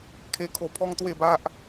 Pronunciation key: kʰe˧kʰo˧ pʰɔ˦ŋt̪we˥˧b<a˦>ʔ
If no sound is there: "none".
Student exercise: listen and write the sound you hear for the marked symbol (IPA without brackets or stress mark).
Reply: a˦